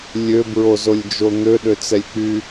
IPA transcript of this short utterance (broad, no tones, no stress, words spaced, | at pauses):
lʲøbɹozolʲd͡ʒo n̪øɗøt͡sɛlʲk͡py